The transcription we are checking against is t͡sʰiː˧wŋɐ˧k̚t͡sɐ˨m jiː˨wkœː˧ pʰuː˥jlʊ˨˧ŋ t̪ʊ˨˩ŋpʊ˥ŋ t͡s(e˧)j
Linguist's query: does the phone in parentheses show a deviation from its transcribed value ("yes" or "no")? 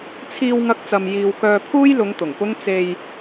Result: no